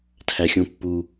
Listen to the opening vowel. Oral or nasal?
oral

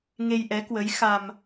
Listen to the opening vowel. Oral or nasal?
oral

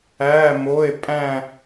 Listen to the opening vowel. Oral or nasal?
oral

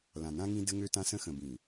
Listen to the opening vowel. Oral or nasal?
nasal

